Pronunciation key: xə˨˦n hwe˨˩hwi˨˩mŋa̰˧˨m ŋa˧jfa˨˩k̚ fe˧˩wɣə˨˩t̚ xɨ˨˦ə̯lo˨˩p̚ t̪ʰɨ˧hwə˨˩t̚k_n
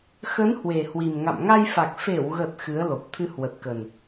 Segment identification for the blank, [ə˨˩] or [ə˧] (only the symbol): ə˨˩